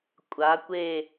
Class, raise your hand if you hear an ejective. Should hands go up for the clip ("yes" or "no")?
yes